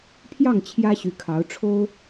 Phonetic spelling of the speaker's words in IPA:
pʰ j ɑ˥˩ ŋ t͡ɕʰ j ä˥ ɕ y˧˥ kʰ ɑ˧˥ ʊ̯ ʈ͡ʂʰ o˥ ʊ̯

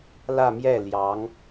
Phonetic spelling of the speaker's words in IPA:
l ä˥˧ m j ɛ˥˩ l j ɑ˧˥ ŋ

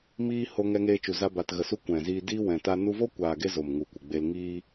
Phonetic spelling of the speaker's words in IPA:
m iː˧ h o˧ ŋ ɛ˧ ŋ eː˧ t͡ʃ u˨ z a˦ b a˧ t ɣ ə˨ s u˧ kʷ ɛ̃˨ z iː˧ d iː˦ w ɛ̃˨ t a˧ n u˧ v o˦ kʷ aː˨ ɡ e˧ z o˨ m ŋ u˨ kʷ ɨ˨ ɡ͡b e˧ l ŋ iː˧

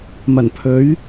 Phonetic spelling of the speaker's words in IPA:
m ɐ˨˩ n pʰ ɵ˨˥ ɥ

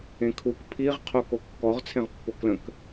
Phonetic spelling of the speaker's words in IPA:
ẽ kʰ u k pʰ i ʁ qʰ o k o kː ɔ ʁ t͡sʰ ẽ ʁ pː o k l ə̃ k

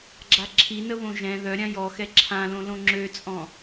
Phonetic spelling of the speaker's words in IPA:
ɡ͡ǁ a ǁʰ i n ə β õ ʒ ɛ̃ ð œ ɾʲ ã j ɔ x ɛ ǁʰ ã l õ l õ ŋ͡ǁ ø t͡sʼ ɔ̃

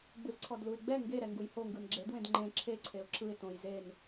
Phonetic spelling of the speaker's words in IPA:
ɡ͡b ɯ z ǀʰ ɔ d l u ɪ̯ ɡ͡b ɛ ŋ ɡ e ɾ ɛ ŋ ɡ u j h o ŋ ɡ ɯ n ɡ͡ǁ e d w ẽ d ŋ͡ǃ ẽ ǁʰ e ǀʰ e ʊ̯ ǁʰ ɯ ɪ̯ t õ j z e n

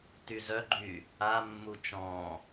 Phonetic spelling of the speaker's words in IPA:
t y z œ ɡ͡ǃ yː | a mː u t͡ʃ ɔ̃ː

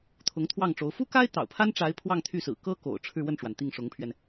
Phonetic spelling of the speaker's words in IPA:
t̪ʰ ʊ˧˥ ŋ t̪ʰ w ɑ˥˩ ŋ ʈ͡ʂ o˧˥ ʊ̯ f u˥ k a˥ ɪ̯ t̪ ɑ̰˨˩ ʊ̯ pʰ a˥ n ʈ͡ʂ a˧˥ ɪ̯ pʰ w ɑ˥˧ ŋ t̪ʰ y˥˩ s ɹ̩˨˩ k ɤ˥ k o̰˨˩ ʊ̯ ʈ͡ʂʰ ɻ̩˥˧ w ə˥˩ n ʈ͡ʂ w a˩ n t̪ i˥˩ ŋ ʂ ʊ˧˥ ŋ pʰ ɥ ɛ˧ n

